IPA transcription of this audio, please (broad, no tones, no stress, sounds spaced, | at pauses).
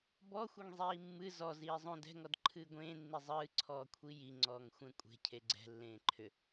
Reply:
b ɔ xʷ e ŋ zˤ iː mː ɨ z ɔ z iː zˤ õ d ɛ̤ ŋ ɔ d ǃʰ ɨː ɡʷ ẽː nː i zˤ ɨː ǀʰ ɔː kʷʰ i j i ŋ͡ǀ ɔː ŋ xʷ ɛ̃ kʷʼ e̤ cʰ e ɡ͡ǀ ɛ̤ lː ẽː ǃʰ ʏ